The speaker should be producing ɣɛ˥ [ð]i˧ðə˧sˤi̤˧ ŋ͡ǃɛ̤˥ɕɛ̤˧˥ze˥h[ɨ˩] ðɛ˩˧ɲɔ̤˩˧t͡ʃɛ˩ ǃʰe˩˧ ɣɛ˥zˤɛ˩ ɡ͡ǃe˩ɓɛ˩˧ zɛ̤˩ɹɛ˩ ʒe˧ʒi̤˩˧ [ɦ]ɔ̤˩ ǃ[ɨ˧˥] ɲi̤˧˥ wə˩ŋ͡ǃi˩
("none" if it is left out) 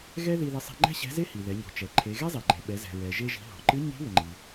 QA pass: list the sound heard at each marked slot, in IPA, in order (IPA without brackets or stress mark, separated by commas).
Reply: ð, i˩, ɦ, ɨ˧˥